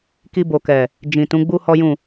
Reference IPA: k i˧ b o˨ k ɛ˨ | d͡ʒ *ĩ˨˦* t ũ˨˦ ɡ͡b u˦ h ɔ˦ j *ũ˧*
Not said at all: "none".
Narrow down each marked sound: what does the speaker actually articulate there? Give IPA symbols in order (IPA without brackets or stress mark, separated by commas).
ĩ˨, ũ˦˨